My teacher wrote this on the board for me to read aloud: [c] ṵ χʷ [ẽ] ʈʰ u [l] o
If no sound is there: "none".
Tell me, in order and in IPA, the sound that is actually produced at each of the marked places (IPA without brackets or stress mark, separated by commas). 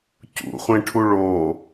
c, ẽ, ɭ